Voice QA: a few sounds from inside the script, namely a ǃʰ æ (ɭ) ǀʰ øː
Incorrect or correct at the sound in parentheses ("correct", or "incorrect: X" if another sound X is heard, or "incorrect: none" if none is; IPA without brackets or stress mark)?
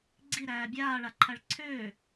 correct